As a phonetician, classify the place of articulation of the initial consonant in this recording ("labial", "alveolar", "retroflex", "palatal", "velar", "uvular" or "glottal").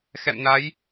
velar